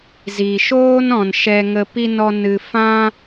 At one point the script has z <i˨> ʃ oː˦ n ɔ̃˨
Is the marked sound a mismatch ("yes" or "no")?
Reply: no